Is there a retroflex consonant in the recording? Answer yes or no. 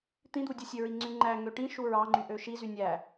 yes